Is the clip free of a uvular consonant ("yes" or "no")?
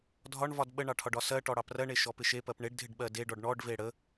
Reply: yes